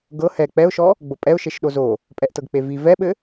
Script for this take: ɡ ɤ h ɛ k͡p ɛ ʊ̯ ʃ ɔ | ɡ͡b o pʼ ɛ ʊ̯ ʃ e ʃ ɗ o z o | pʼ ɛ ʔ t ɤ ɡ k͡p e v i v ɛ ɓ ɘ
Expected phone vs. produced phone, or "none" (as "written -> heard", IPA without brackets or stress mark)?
none